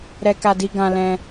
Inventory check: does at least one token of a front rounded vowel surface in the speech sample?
no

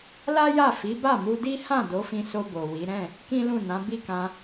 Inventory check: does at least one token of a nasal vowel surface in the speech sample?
yes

